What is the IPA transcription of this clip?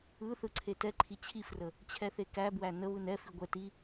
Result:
ɯ θɯǀʰetɛǃʰi t͡ɕʰifrə | t͡ɕʰɛθekæbwæ nə βɯnɛfi ɡʷɛ ti

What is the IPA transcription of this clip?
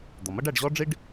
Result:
d̪ɔ˩mʌ˥ɖ æ˧ɖʑɔ˥ɖ͡ʐi˥ɖ

